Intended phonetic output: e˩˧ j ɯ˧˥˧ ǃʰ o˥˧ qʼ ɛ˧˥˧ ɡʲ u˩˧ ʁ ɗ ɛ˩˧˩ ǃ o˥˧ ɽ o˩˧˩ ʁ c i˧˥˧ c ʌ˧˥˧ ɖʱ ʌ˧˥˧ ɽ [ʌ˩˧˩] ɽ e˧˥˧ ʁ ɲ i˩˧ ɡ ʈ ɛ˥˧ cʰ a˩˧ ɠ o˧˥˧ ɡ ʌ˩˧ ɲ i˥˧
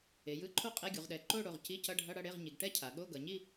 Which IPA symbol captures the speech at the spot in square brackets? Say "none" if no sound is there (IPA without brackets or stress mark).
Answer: ʌ˥˧